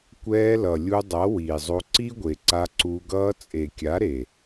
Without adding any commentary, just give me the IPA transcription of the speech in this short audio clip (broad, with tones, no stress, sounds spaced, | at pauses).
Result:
kʷ ɛː˧ l ʌ˨ lʲ u˧ dˤ ʌ˨˦ w iː˨ zˤ o˧ ǀ i˦ ɡʷ e˨ ǀ a˧ ǀ u˧ ɡ ʌː˧ t͡sʼ e˨ kʲ a˨˦ ɾ e˨